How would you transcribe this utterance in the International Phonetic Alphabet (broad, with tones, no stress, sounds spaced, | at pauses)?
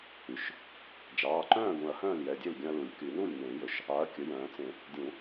y˩˧˩ ʃ | d͡ʒ ɑː˩˧˩ ǃ œ̃ː˥˩ ɡ ũ˨˩˦ ɐ̯ h œ̃ː˥˩ l j ɛ˩˧˩ dʲ e˥˩ l ɡʲ œ̃˧ ɐ̯ l u˨˩˦ lʲ k y˨˩˦ n u˥˩ lʲ n̪ ẽ˨˩˦ j ɵ˩˥ ʃ | ɑ˩˥ ɐ̯ kʲ ɵ˩˧˩ j œ̃ː˨˩˦ t͡s ẽ˨˩˦ | dʲ ũ˨˩˦